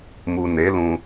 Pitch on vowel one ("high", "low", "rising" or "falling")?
low